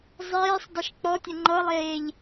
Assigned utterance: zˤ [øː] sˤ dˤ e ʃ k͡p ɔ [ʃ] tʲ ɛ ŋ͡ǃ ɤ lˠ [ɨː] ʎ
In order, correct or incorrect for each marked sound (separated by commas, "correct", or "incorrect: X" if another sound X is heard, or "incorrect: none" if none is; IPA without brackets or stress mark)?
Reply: incorrect: eː, incorrect: none, incorrect: eː